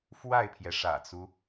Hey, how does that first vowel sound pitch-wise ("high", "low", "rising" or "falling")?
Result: falling